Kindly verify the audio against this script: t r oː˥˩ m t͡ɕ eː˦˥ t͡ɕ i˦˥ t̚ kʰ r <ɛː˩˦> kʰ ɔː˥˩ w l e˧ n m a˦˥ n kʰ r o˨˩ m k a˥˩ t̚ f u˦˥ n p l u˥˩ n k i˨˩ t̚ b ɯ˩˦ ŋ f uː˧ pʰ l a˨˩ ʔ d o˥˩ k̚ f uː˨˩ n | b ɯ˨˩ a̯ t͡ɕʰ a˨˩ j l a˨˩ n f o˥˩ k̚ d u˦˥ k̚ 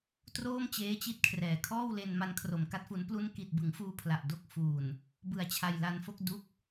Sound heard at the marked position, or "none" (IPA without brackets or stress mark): ɛː˩˦